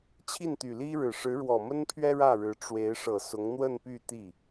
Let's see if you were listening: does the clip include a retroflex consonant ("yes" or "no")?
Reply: yes